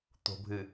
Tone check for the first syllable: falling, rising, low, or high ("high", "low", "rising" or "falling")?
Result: low